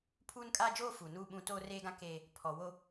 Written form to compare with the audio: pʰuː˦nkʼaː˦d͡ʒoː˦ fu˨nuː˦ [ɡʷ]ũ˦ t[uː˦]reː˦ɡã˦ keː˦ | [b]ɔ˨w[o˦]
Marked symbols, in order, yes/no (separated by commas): no, no, no, yes